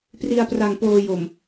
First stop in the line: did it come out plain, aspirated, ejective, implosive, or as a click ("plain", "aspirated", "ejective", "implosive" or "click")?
plain